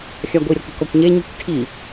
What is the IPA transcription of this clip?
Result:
xʲ a ɡʷ i ɾʲ ɔ k i̤ k ɔ kʷ ɲ e ɲ i̤ kʷ ʈʰ i

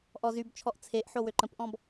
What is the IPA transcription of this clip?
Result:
ʔ ɔ z y b t͡ʃʰ ɔ ʔ t͡sʰ e ʔ ħ o w ø ǃ ə̃ p ʔ ɔ̃ b

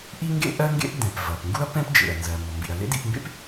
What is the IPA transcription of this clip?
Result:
ʔ i˥ ŋ ɡ ḛ˥ ʔ ɜ˥ ŋ ɡ ḛ˥ ʔ d ɛ̃˩ p v ɐ˩ p ŋ ɡ u˥ ɐ̯ p ɛ̃˥ p d͡ʒ ḛ˩ ɐ̯ n z ɜ˩ m ɔ˩ m b ḭ˩ ɐ̯ l ḛ˥ d ḭ˧ p m b ḛ˥ p

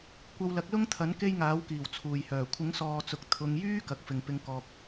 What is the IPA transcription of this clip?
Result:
kʷ ɐ˧ w l ɐ˨˥ k̚ l ʊ˥ ŋ t̪ʰ ɐ˨˥ n k e˥ j ŋ aː˨˥ w k iː˨˩ w t͡sʰ uː˨˩ j h œː˨˩ kʷʰ ɪ˨˥ ŋ s ɔː˨ t͡s ʊ˨ k̚ t̪ʰ ʊ˧ ŋ j yː˥ k ɐ˨˥ k̚ f ɪ˨ ŋ p ɪ˧ ŋ k ɔː˨ k̚

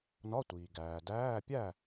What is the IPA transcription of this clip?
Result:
n ɒ˧˥˧ tʷ iː˩ ɡ æː˩ d æː˧˥˧ pʲ æ˥˨

